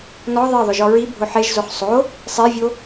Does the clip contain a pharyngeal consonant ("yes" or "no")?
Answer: yes